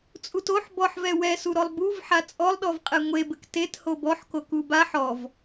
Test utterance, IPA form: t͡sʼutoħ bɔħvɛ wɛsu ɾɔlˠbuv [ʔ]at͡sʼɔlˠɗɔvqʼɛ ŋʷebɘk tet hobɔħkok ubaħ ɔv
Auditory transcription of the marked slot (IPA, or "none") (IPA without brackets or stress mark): ħ